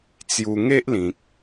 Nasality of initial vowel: oral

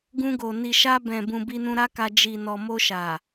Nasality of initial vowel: nasal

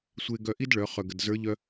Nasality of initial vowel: oral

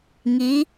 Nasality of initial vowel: oral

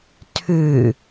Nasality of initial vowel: oral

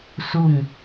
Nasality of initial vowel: oral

